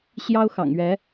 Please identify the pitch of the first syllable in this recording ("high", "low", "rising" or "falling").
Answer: high